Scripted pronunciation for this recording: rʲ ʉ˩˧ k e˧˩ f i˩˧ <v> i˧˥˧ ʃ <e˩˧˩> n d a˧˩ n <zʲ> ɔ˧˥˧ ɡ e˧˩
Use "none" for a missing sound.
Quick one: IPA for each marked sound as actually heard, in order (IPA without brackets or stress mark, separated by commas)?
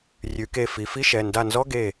f, ɛ˩˧˩, z